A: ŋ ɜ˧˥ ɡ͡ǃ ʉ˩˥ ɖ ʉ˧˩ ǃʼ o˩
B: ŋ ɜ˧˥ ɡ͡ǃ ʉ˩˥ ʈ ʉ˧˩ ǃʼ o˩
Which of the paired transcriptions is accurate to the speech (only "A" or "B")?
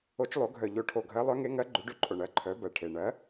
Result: A